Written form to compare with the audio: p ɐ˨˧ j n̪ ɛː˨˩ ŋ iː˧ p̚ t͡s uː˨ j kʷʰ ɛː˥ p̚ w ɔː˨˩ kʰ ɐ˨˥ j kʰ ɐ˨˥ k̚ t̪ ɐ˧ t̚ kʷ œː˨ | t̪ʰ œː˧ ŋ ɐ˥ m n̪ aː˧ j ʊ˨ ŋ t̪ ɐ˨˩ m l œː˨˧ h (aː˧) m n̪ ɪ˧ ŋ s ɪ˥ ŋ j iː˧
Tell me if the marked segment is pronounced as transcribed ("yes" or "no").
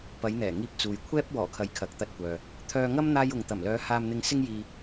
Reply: yes